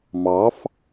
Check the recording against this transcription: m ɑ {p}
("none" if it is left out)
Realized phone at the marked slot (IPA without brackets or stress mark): f